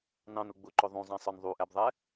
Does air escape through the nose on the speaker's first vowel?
yes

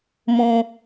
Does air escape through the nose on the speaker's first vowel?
yes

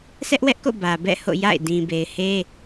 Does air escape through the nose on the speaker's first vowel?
no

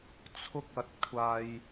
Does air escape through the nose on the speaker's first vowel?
no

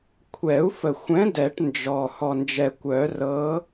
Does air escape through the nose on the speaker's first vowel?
no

